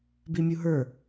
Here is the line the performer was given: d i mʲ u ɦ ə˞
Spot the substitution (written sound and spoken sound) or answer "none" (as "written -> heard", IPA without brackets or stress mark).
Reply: d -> b